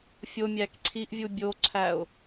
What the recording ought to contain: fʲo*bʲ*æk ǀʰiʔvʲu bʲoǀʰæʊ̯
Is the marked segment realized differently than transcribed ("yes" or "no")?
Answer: yes